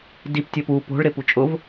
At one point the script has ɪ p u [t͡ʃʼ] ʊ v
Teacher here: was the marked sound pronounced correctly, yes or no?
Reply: yes